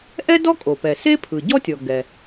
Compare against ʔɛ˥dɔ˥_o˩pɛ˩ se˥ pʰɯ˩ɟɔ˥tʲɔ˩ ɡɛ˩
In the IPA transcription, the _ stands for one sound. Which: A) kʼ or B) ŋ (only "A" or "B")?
A